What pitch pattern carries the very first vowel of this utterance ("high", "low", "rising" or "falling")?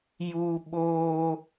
high